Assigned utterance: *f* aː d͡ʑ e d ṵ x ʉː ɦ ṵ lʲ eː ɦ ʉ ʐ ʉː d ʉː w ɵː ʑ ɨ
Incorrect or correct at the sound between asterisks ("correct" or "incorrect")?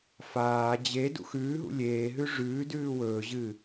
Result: correct